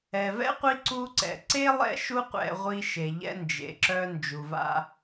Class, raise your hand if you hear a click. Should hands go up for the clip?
yes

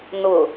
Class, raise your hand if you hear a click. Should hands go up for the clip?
no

